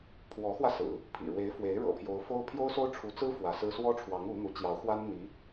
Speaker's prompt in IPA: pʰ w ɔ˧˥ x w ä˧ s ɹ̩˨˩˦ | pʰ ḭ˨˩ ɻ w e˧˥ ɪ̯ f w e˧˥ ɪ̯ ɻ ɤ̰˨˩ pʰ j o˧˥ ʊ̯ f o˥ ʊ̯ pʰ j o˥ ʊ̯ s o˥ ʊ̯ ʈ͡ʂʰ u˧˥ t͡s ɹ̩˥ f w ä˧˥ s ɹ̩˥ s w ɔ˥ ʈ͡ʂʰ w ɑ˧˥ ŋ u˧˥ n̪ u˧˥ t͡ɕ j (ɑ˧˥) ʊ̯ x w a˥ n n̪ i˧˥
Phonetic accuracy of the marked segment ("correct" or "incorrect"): correct